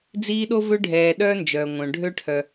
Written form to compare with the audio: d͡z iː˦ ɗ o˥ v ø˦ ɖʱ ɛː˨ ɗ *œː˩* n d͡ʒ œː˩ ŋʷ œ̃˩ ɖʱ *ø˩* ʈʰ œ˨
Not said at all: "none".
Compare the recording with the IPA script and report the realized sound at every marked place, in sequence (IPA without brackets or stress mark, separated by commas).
œː˥, ø˥